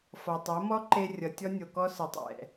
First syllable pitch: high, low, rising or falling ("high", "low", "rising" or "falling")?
low